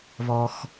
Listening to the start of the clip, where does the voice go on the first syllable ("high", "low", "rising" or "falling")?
low